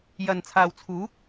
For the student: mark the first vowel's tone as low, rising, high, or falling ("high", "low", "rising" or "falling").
low